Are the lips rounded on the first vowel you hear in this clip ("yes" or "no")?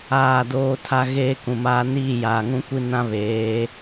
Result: no